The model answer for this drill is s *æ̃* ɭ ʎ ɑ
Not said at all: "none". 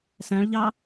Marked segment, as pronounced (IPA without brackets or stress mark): æ̃